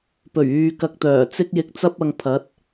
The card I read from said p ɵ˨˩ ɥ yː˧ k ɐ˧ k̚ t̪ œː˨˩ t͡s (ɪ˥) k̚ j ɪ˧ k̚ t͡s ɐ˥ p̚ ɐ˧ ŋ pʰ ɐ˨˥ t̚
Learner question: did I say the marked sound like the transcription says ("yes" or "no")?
yes